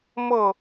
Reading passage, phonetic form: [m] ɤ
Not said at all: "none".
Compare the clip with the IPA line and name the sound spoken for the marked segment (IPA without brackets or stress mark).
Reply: m